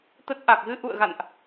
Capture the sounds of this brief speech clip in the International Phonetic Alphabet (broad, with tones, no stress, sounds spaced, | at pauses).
t̪ ə˦˥ t̚ ʔ a˨˩ k̚ ɣ ɨ˧ ʔ ṵ˧˨ ə̯ ɣ a̰˧˨ n ʔ